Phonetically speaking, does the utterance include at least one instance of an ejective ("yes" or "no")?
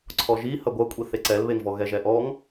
yes